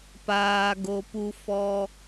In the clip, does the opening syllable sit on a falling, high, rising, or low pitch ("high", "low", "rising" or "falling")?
low